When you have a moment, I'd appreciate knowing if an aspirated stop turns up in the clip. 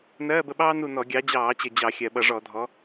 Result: no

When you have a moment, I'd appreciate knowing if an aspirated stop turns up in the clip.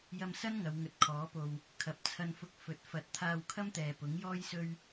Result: yes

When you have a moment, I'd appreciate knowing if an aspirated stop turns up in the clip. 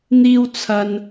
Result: yes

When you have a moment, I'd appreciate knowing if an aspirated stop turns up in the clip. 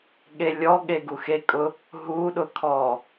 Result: yes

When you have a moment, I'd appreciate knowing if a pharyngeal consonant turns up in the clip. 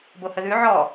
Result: yes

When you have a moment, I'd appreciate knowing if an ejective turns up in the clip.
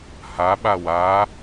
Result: no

